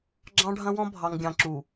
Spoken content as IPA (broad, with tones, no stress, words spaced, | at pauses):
ɡ͡ǁɑ̃˦ɖʱɐ̃˦wɔ̃˦ bʱɑ˨ŋɡʲɑ̃˨ǁu˨